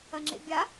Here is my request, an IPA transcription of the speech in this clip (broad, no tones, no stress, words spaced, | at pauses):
ɐŋ͡ǁḛbʲa